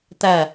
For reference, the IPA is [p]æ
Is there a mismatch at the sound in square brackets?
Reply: yes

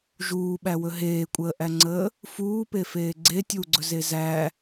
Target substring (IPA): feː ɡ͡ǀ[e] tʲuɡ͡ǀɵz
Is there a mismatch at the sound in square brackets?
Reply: no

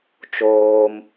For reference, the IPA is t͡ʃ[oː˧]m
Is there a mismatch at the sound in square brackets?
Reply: no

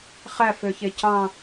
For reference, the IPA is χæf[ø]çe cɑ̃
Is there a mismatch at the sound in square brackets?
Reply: no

